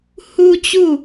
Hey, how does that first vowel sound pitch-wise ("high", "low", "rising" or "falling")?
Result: high